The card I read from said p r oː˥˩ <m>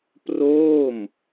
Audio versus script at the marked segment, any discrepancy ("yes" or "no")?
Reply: no